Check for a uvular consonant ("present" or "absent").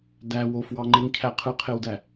present